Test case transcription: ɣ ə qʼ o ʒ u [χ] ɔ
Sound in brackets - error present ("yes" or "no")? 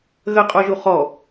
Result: no